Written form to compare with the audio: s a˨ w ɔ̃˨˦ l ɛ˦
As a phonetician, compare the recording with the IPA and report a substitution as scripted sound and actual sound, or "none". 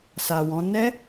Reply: l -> n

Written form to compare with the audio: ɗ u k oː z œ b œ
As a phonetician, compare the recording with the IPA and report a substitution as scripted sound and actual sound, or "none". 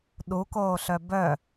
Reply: z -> ɬ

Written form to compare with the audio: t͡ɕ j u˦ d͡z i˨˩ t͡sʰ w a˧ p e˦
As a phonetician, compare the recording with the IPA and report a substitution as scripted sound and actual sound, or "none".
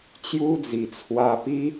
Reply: e˦ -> i˦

